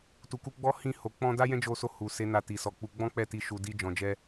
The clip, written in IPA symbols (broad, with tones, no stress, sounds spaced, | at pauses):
t u˨ k u˧ ɡ͡b ɔ˦ h ĩ˦˨ h o˨ k͡p ɔ̃˧ d a˦ j ɛ̃˦ d͡ʒ o˧ s o˧ h u˨ s e˨˦ n a˧ t i˨ s ɔ˨˦ k͡p u˧ ɡ͡b ɔ̃˦ k͡p ɛ˦˨ t i˧ ʃ u˨ d i˧ d͡ʒ ɔ̃˧ d͡ʒ ɛ˦